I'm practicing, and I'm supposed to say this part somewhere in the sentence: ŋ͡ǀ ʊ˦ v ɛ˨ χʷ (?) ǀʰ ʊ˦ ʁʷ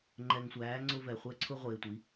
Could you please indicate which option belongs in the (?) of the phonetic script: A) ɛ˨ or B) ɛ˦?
B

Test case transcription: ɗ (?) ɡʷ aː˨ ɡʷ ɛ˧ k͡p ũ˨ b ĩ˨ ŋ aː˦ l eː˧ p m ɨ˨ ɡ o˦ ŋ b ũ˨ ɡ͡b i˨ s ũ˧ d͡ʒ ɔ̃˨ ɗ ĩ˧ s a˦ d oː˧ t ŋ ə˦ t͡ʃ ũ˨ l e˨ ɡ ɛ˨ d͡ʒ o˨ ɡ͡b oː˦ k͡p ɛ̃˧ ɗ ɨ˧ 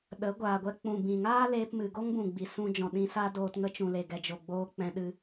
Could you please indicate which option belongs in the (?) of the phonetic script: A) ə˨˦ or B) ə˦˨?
A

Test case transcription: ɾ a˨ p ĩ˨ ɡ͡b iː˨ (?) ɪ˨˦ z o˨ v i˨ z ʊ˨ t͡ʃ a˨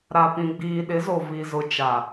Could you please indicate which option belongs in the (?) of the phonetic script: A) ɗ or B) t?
A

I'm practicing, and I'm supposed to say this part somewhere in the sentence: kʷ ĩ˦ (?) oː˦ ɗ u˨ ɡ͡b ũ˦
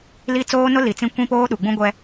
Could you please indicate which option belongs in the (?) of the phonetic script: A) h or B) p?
B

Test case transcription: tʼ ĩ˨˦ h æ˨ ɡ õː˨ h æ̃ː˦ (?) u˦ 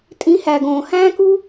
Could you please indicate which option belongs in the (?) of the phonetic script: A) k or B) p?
A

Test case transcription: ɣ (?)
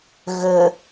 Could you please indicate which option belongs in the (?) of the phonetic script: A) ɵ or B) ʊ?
A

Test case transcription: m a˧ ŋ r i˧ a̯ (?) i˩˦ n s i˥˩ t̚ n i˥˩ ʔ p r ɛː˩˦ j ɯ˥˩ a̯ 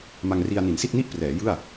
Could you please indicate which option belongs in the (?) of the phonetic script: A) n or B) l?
A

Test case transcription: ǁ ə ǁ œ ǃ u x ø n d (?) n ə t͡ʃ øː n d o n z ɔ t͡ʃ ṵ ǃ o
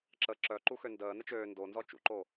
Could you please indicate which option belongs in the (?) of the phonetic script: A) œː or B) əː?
B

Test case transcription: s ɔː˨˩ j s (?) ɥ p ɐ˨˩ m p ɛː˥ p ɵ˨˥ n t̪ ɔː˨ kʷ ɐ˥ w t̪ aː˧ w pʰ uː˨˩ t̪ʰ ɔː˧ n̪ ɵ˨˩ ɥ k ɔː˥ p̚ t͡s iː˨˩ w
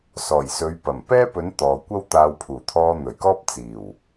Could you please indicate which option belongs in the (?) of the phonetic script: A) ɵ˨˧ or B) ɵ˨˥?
A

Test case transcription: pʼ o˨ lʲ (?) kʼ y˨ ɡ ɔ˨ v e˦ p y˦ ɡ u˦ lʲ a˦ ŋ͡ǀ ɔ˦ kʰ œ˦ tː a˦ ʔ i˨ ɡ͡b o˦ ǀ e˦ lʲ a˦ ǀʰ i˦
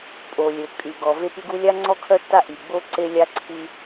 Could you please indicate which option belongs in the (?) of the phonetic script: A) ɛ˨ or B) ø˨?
B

